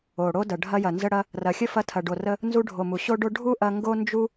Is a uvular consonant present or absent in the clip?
absent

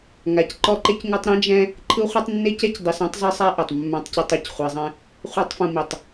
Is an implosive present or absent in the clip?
absent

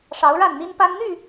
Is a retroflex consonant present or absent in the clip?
present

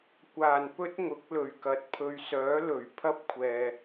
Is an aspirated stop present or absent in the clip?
present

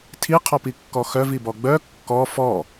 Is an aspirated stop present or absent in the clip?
present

